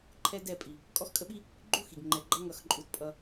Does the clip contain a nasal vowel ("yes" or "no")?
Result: no